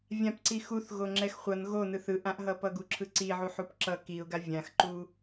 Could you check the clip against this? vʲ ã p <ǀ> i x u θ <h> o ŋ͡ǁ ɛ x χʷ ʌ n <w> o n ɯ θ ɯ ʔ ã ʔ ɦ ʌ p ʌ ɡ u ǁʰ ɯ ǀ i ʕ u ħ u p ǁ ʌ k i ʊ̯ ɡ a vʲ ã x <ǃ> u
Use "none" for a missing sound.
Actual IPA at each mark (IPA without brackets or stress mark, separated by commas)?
ǀ, ɣ, ɣ, ǃ